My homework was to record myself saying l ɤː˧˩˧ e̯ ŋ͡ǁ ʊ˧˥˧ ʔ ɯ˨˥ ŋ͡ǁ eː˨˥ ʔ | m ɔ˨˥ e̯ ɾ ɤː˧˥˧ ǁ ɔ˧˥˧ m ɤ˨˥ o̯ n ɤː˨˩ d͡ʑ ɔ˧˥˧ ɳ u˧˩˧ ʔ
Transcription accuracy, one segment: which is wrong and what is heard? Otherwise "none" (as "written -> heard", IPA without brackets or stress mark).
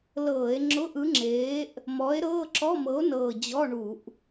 none